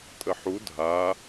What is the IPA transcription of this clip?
tʼ ə ħ u dʱ a

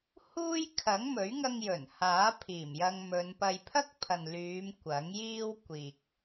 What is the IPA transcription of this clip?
h uː˥ j kʰ ɐ˨˥ ŋ m ɵ˨˥ ɥ ŋ ɐ˧ ŋ j ɵ˨˩ n h aː˨˥ pʰ iː˨˩ m j ɐ˧ ŋ m ɵ˨˧ n p ɐ˧ j pʰ ɐ˥ k̚ pʰ ɐ˨ n l yː˨˧ m kʷ ɐ˨˥ ŋ j iː˥ w kʷ iː˨ k̚

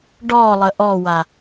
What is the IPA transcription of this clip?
ɖ ɔ lˠ ə ʔ ɔ w a

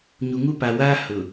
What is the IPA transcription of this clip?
ɲ u˨ ŋ u˦ p a˨ w aː˦ h ʊ˨

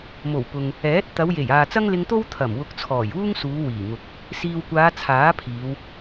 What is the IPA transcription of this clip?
m o˨˩ w p ʊ˨ ŋ | ɛː˨˥ t̚ t̪ ɐ˨˧ w j e˨˩ j aː˨ t͡s ɐ˥ ŋ l ɪ˧ ŋ t̪ o˥ w t̪ʰ ɐ˨˩ m w ʊ˨˥ k̚ t͡sʰ ɔː˨˩ j uː˥ ŋ s uː˨˧ w iː˨˩ ŋ ʊ˨ k̚ | s iː˨ w kʷ aː˨˧ t͡sʰ aː˨˥ pʰ iː˨˧ w

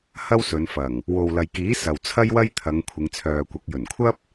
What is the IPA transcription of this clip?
h ɐ˥ w s ɵ˨˧ n f ɐ˨˩ ŋ | w o˨ w l ɐ˨ j k iː˨˥ s ɐ˨ w t͡sʰ ɐ˥ j w ɐ˥ j t̪ʰ ɐ˨˧ ŋ kʷʰ ɪ˨˧ ŋ t͡sʰ œː˨ kʷ ɐ˨˥ k̚ j ɵ˨˩ n kʷʰ ɐ˥ p̚

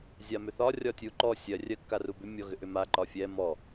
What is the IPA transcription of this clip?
zʲ a m ʏ θ ɒ rʲ ɒ tʲ u ǃ ɔ sʲ ɜ rʲ ɜ kː a r u b ʏ mʲ ɔ ɣ ʏ ʔ ʏ m a ǃ ɒ fʲ ɛ m ɔ

